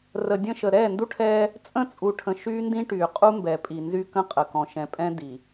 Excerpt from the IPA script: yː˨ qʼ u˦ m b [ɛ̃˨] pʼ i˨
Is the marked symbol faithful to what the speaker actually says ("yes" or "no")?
no